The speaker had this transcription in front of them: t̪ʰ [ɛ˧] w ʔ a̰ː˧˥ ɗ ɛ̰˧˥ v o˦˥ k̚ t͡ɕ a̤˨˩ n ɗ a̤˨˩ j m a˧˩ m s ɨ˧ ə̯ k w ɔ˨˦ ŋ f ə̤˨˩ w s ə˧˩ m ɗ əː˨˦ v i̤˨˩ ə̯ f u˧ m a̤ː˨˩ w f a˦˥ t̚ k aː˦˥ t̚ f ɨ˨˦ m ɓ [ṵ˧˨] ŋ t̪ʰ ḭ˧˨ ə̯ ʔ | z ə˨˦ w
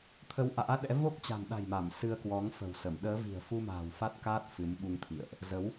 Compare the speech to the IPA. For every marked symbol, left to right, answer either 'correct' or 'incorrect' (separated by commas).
incorrect, incorrect